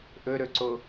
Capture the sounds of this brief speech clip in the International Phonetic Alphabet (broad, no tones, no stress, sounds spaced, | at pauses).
ʔ ɵ ɾ ɵ ǀ o